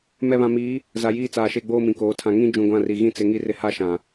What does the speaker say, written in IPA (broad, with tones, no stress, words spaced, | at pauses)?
mɛ˨βã˨miː˨˦ | za˨jiː˦t͡saː˨ʃe˦˨ ɡ͡boː˦mĩ˨koː˨˦ tʰã˨ ŋĩ˦ d͡ʒũ˨ɡʷã˦˨ ri˨ ɣĩ˦t͡sɪ˨˦ ŋi˦rɪ˦ ha˦ʃã˨